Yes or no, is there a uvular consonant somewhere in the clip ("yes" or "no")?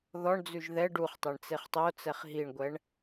yes